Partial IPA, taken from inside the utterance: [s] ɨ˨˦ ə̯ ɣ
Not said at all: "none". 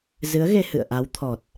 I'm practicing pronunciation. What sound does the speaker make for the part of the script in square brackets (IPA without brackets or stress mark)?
z